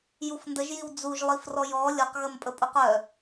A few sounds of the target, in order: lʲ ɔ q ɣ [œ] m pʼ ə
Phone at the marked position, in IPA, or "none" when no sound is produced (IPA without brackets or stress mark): ə